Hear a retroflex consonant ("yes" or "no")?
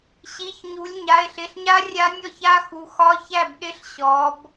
no